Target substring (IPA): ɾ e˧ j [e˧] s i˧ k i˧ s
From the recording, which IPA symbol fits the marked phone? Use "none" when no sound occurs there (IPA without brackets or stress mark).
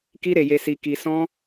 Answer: e˧